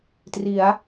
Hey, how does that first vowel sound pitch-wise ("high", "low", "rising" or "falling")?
rising